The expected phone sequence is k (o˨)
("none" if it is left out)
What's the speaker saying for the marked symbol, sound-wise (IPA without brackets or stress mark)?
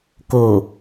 o˨